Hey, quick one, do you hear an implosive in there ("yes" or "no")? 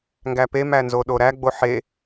yes